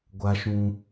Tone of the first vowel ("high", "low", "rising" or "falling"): high